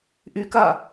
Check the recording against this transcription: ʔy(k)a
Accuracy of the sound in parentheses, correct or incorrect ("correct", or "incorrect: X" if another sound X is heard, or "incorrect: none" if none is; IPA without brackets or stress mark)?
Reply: correct